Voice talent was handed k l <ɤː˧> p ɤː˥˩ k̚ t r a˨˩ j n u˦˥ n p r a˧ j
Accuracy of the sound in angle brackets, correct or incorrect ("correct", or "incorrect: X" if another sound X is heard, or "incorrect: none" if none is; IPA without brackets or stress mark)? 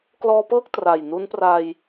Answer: incorrect: ɔː˧